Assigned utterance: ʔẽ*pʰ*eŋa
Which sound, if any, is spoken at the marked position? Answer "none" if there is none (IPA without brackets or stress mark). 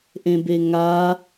b